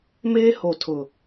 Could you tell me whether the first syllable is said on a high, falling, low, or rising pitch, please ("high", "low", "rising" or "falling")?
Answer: high